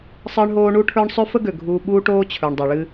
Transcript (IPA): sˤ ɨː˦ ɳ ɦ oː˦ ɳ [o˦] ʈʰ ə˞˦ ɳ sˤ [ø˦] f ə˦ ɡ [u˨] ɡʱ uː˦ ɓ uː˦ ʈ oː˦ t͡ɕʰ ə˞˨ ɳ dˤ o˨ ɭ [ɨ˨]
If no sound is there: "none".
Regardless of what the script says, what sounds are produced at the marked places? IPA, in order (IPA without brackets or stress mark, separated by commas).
u˦, ø˦, ø˨, ɨ˦